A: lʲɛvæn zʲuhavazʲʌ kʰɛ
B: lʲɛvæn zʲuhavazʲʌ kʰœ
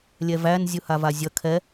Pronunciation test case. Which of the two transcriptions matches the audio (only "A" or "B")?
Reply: A